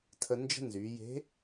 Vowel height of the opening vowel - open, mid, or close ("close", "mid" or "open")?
mid